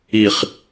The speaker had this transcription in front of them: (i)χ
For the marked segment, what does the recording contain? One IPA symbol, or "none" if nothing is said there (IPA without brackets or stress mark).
i